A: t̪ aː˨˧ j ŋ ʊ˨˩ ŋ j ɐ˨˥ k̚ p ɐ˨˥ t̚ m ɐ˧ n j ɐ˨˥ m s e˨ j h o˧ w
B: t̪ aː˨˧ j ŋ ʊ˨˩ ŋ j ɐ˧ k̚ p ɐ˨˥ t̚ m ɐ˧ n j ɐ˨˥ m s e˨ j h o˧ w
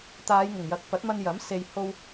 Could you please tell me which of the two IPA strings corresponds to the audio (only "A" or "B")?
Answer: A